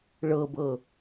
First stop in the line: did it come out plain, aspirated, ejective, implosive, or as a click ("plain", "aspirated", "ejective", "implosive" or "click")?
plain